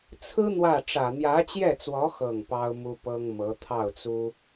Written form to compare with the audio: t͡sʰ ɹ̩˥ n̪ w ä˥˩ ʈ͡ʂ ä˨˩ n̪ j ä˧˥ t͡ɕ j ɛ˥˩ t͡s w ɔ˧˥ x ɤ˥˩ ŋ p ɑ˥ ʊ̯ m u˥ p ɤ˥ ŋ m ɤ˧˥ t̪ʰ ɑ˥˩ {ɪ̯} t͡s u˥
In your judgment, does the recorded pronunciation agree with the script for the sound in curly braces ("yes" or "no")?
no